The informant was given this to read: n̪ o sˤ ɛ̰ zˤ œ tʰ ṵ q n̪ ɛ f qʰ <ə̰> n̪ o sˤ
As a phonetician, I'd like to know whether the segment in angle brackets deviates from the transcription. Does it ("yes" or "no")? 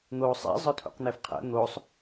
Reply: no